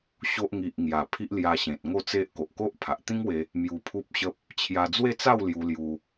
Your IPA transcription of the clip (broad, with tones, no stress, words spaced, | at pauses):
ɕo˦ʔ ŋi˨ʔ ŋja˨˩ pʰi˦ʔlja˧ɕẽ˨t̚ ŋo˥˧t͡se˦ʔ ko˨ʔko˦ʔpʰa˨ʔ t̪ĩ˦ŋwe˧ | mju˧pʰu˦p̚ɕə˦p̚ | t͡ɕʰja˧ d͡zwe˥˧t͡sa˥˧w lju˧lju˧